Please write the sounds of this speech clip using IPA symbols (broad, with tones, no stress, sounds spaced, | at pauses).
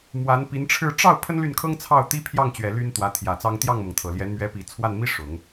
m w a˧˥ n p i˧˥ n ʈ͡ʂʰ ɻ̩˥˧ ʈ͡ʂ ɑ˥˩ ʊ̯ pʰ ə˥ n l y˥˩ n kʰ ɤ˥ ŋ t͡sʰ ɑ˥˩ ʊ̯ t̪ i˥ pʰ j ɑ˥˩ ŋ t͡ɕ ɥ ɛ˨˩ l y˥ n t̪ w ä˧˥ t̪ʰ j ä˨˩ t͡s ɑ˥ ŋ t̪ j ɑ˥˩ ŋ m ɤ˩ ŋ t̪ʰ ɤ˨˩ l j ɛ˧˥ n m ɥ ɛ˧˥ p i˨˩ t͡sʰ w a˥˩ n m i˥ ʂ ʊ˨˩˦ ŋ